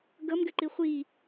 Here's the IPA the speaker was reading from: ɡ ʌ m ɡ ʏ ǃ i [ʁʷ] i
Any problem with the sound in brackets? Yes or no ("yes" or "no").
yes